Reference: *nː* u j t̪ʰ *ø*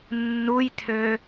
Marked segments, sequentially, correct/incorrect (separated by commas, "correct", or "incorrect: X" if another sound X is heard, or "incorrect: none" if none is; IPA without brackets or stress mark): correct, correct